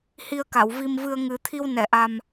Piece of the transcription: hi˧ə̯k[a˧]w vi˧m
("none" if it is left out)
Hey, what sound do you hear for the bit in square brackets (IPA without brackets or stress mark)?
a˨˩˨